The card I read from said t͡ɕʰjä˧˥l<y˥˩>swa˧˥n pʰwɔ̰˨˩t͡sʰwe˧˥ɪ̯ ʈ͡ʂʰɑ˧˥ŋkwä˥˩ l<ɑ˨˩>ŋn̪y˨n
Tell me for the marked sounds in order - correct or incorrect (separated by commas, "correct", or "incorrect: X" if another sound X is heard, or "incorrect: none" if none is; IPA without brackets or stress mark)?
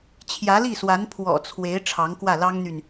incorrect: i˥˩, incorrect: ɑ˥